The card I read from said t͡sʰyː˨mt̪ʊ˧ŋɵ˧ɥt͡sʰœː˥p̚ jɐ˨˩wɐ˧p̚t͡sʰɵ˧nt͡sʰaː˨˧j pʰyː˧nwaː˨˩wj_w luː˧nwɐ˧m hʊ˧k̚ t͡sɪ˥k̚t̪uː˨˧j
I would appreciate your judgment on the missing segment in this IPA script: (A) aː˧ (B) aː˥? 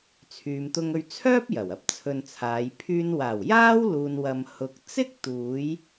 B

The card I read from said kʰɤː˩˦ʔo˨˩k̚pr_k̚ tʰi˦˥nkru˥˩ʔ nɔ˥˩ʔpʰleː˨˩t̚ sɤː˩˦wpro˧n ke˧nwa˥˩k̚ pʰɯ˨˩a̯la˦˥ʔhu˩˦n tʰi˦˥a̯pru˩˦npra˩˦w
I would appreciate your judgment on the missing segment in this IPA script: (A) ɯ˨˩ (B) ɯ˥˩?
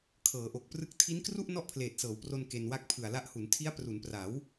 B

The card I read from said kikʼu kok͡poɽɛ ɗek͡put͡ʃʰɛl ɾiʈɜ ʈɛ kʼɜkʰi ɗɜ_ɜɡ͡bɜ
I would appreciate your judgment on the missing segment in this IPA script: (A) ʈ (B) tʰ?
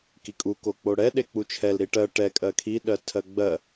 B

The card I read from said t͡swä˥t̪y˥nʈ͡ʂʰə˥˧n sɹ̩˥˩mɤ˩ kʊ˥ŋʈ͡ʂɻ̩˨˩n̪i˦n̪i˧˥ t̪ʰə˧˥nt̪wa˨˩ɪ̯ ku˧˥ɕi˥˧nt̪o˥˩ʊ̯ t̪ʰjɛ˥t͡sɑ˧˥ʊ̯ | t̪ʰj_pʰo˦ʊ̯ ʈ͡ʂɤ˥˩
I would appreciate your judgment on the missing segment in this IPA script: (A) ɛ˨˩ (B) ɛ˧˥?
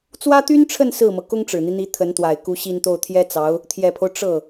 A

